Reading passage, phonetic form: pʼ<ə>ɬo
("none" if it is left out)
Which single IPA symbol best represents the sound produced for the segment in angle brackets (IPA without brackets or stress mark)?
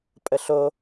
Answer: ə